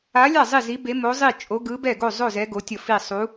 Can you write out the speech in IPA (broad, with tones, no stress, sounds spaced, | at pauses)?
a˧˥ lʲ a˥˨ zˤ i˥˨ z i˧˥ b e˧˥ m o˧˥ zˤ i˥˨ t͡ʃʼ o˧˥ ɡ ɯ˧˥ b ɛ˥˨ ɡ o˥˨ zˤ o˥˨ z ɛ˧˥ ɡ o˧˥ tʲ ʌ˥˨ f i˥˨ sˤ u˧˥